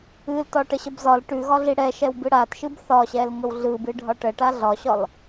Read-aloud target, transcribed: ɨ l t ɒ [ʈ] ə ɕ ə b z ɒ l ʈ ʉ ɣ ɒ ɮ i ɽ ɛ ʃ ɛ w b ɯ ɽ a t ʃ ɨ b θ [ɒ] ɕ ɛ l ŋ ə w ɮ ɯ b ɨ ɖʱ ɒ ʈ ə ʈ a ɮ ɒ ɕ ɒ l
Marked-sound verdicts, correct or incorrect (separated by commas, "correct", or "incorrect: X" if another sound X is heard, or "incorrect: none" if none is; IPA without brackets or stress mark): correct, correct